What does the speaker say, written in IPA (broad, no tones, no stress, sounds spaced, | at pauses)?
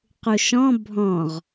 q u ʃ ɔ̃ bʱ ɔ̃ ʁ